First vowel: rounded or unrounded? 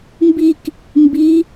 unrounded